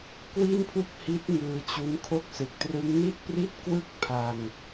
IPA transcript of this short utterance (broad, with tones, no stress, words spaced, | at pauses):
kwi˥˩npʰu˥˩k̚ hi˦˥t̚ ŋɯː˧t͡ɕu˦˥nkʰo˥˩k̚ sɯ˨˩k̚trɯ˦˥ŋ ni˥˩t̚pri˥˩t̚ kwɯ˥˩k̚pʰa˧ŋ